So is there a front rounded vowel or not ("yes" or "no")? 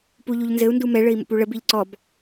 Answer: no